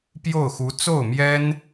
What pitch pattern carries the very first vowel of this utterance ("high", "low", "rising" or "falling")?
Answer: falling